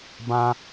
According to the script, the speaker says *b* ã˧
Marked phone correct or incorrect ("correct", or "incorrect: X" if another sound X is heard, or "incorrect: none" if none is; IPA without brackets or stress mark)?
correct